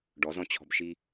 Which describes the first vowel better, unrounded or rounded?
rounded